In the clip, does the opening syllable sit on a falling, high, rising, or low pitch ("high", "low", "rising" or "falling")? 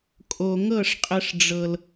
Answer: low